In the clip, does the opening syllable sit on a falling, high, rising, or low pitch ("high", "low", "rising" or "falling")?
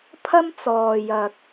high